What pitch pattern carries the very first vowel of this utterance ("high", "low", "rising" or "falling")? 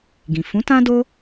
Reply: low